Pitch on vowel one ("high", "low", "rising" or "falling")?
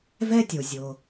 high